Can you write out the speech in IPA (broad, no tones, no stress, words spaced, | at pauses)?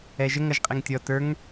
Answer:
ɛʒəŋ ʌʒqʼɪŋtʲɔ tə˞ŋ